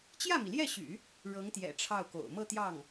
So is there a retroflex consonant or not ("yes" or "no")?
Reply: yes